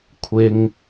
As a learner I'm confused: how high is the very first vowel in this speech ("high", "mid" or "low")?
high